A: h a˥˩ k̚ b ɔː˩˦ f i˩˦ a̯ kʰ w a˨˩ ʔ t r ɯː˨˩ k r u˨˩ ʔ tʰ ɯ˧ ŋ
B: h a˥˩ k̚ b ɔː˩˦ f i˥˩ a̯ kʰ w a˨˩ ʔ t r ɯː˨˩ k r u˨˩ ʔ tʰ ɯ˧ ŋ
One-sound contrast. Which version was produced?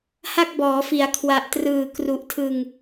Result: A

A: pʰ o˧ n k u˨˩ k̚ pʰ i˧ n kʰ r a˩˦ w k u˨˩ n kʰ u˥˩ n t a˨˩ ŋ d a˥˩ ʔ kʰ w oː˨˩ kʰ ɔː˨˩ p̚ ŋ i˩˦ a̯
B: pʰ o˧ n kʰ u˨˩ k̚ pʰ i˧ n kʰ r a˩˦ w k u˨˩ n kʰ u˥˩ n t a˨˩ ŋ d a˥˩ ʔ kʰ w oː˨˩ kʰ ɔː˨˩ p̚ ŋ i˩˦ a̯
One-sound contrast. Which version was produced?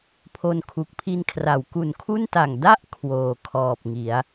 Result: B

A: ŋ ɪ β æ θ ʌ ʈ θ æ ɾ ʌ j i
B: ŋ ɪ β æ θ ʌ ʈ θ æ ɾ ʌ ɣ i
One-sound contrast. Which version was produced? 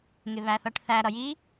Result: A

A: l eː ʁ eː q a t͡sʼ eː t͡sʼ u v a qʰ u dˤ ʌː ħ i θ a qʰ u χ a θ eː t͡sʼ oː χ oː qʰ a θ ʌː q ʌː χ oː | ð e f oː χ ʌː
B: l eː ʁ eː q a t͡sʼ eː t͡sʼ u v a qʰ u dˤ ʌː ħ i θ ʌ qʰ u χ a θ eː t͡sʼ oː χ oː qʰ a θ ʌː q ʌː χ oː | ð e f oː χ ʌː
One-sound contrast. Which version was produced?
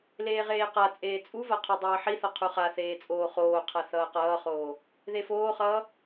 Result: B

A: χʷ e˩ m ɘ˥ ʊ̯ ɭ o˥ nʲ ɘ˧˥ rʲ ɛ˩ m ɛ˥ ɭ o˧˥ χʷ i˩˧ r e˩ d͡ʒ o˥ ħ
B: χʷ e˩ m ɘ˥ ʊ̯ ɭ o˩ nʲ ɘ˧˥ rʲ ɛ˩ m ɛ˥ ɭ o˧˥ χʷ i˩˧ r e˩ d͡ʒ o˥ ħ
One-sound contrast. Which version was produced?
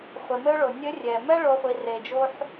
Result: B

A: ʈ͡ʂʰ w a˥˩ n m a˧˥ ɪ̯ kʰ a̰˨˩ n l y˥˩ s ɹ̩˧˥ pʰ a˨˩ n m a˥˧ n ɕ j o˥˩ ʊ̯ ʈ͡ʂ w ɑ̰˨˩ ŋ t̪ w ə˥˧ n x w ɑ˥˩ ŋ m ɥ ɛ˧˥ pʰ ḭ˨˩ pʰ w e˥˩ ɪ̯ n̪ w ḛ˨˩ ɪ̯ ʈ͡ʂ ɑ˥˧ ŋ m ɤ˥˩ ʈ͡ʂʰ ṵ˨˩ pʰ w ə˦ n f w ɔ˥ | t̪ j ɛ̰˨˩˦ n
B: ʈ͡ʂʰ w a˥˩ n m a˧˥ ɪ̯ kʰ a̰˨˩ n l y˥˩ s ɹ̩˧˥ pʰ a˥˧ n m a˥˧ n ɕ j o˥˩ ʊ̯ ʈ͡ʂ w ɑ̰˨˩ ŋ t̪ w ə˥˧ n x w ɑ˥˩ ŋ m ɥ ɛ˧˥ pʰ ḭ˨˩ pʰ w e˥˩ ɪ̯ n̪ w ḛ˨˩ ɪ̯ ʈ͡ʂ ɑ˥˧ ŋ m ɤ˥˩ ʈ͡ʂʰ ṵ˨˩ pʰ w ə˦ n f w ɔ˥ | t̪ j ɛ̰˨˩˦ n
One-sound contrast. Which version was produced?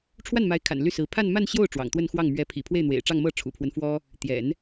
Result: B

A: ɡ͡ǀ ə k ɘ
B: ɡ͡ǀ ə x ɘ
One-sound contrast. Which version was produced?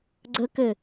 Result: A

